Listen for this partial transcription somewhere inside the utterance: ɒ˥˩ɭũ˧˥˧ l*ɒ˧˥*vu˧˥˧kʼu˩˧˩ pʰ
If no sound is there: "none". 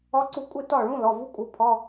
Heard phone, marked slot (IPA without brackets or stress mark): ɒ˩˧˩